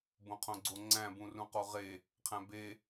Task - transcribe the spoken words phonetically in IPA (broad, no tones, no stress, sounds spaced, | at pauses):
b õ qʰ õ ɡ͡ǀ o ŋ͡ǀ æ̃ b ũ r ũ q o ʁ e | qʰ æ̃ b e